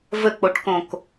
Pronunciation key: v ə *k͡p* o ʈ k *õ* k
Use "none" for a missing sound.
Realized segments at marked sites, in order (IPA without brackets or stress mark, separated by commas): k͡p, õ